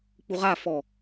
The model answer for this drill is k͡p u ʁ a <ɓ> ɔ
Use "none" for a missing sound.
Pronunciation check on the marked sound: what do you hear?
f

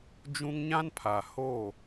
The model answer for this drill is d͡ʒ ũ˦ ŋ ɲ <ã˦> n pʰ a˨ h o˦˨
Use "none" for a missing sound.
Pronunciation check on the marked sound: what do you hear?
ã˦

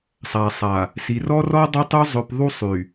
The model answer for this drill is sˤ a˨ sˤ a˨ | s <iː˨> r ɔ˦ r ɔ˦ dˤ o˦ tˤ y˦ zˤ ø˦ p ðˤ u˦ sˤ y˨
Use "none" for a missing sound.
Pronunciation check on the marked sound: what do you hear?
i˨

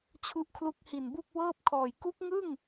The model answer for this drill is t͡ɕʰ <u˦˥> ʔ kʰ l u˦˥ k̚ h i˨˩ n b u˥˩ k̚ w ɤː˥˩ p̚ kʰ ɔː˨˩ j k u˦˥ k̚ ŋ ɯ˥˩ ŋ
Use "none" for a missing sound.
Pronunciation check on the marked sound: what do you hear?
u˦˥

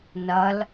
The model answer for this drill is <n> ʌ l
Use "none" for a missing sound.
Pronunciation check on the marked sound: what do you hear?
n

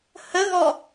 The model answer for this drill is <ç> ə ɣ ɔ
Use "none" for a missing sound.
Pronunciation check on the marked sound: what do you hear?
h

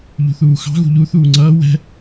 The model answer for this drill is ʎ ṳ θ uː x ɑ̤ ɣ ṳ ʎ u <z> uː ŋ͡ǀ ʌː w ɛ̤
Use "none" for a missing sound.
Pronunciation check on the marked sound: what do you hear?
θ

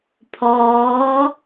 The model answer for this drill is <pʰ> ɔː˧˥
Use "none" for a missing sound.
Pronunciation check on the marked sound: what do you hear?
pʰ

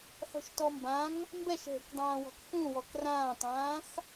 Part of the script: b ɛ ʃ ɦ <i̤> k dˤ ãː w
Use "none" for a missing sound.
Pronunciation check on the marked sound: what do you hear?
e̤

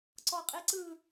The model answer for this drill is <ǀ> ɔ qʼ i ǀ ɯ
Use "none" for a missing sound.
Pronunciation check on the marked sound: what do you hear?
ǀ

